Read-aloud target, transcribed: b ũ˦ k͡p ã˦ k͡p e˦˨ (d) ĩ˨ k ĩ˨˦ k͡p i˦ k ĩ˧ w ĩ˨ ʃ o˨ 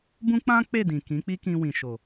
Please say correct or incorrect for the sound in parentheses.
correct